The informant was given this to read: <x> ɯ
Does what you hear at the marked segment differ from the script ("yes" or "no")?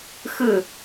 no